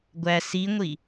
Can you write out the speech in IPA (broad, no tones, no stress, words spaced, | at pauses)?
ɡʷæ siŋʷi